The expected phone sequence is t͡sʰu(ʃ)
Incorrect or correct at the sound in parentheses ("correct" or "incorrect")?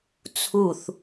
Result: incorrect